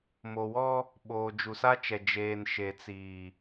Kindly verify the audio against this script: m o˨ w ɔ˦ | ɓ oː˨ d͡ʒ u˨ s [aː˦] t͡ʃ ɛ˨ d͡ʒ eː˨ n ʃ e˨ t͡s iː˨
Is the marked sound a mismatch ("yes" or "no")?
yes